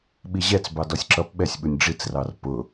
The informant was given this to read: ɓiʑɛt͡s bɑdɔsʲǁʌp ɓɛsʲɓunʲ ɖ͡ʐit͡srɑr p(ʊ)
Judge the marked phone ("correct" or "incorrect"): correct